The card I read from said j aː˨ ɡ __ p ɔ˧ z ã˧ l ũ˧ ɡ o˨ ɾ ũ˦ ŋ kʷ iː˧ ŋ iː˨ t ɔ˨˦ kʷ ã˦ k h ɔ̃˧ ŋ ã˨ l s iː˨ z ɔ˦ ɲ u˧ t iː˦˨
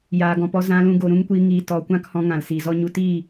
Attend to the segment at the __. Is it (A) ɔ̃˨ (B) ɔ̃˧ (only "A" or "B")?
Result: A